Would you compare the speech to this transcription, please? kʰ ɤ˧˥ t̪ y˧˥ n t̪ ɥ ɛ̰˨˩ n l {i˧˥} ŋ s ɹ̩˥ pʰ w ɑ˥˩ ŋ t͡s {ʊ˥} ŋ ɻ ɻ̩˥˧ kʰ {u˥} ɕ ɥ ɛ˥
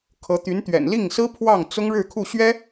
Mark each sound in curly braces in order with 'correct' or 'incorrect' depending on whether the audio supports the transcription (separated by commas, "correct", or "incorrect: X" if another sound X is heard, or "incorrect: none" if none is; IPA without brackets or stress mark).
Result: incorrect: i˥˩, correct, incorrect: u˥˩